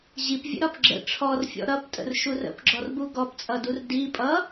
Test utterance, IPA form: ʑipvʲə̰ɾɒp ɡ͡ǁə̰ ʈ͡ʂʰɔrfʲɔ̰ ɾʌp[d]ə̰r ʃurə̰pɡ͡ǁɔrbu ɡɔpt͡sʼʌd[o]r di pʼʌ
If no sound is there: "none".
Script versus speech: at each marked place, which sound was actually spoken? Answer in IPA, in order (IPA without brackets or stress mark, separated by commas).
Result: tʼ, u